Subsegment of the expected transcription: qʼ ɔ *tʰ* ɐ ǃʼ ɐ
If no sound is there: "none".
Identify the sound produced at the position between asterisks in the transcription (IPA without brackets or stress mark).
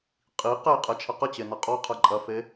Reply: qʰ